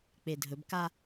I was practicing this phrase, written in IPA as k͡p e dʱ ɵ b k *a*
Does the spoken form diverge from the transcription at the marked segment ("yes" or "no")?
no